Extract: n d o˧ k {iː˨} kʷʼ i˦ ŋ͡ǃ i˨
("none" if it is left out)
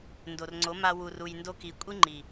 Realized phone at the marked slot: i˨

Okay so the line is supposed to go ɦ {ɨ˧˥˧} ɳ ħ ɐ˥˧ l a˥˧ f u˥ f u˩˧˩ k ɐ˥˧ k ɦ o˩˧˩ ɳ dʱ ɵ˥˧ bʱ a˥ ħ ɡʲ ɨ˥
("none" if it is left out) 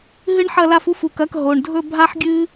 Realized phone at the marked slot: ɨ˥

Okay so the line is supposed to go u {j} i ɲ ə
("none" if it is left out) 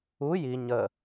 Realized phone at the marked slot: j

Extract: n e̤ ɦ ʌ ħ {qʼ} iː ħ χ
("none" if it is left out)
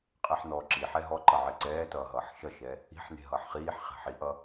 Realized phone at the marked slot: χ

